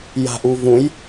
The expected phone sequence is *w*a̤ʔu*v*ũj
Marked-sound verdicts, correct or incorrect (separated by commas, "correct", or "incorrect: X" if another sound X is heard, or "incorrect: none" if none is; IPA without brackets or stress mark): incorrect: j, correct